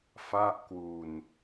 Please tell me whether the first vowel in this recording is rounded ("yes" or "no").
no